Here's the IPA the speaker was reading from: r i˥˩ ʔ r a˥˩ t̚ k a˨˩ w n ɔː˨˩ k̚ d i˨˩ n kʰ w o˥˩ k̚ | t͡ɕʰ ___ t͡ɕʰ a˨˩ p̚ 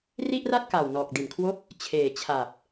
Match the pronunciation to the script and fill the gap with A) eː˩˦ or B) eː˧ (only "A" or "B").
A